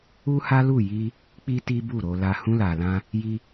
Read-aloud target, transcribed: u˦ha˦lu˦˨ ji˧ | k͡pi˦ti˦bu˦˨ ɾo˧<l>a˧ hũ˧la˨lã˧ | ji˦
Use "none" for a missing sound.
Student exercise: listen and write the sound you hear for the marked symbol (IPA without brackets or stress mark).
l